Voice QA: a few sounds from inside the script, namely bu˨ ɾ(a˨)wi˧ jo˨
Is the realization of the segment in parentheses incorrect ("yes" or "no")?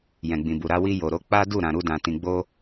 yes